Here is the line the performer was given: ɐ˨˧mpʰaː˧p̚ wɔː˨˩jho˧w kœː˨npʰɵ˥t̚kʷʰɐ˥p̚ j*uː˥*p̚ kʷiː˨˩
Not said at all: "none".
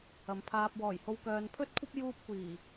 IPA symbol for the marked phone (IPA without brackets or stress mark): uː˥